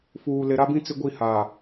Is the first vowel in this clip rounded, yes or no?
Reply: yes